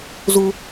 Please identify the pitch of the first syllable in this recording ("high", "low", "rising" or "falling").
high